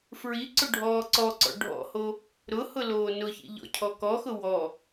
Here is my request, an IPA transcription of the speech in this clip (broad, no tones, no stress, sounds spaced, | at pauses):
f ɹ i ǀ ʊ ɖʱ ɔː ǀ ɔ ǀ ɔ̰ ɖʱ ɔ̰ h o | ɾ ʊ h ʊ l oː n ʊ ç ḭ ʎ ɔ̰ cʰ ɔ k ɔ x ʊ w ɔ